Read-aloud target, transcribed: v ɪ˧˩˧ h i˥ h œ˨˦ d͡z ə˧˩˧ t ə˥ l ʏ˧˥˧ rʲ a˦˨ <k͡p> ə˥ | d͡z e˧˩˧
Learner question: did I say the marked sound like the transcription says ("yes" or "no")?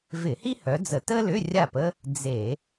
no